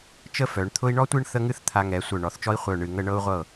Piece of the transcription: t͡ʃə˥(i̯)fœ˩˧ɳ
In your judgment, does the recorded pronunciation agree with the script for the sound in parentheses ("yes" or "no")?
no